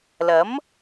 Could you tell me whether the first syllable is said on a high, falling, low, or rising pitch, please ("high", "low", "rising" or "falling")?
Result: rising